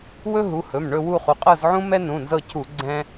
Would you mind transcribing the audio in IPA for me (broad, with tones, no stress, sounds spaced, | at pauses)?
w ɵ˦ ɦ u˩˧˩ h ɵ˩˧˩ m ɳ ɵ˦˨ w u˦˨ χ u˩˧˩ qʼ ɤ˦˨ z ʕ ũ˦ m ɛ˦ n ũ˩˧˩ n z ɤ˦˨ cʰ u˧˩˧ ɡ͡ǀ ɛ̃˦